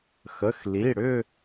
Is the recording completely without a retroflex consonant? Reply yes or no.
no